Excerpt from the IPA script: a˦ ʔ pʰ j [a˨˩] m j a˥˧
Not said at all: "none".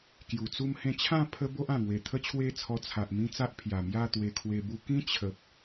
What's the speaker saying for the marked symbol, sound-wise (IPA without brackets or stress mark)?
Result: a˨˩